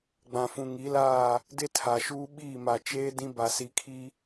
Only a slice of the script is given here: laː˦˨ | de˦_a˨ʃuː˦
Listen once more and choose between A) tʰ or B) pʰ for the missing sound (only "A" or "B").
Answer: A